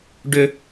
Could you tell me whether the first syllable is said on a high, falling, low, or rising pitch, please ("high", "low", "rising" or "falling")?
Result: high